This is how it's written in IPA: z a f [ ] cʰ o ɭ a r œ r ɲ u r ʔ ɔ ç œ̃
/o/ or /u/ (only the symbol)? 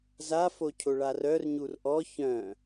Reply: o